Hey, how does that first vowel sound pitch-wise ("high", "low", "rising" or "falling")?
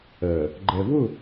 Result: low